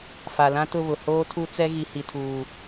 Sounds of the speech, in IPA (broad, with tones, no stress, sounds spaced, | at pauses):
f a˨ l ã˦ t ʊ˦˨ β ʊ˨ h oː˦ tʰ u˦ t͡s ɛ˦ ɣ i˨ h i˨ tʰ uː˨